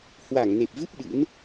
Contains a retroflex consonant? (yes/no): no